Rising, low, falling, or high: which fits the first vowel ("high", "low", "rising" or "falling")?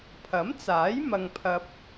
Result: rising